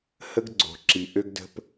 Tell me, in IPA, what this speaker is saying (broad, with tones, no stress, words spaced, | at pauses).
hə˦ɡɡ͡ǀo̤˨ǁi˨ ʔø˦ɡdə̤˦p